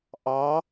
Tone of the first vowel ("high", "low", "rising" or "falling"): rising